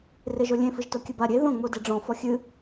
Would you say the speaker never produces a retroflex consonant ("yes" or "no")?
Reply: no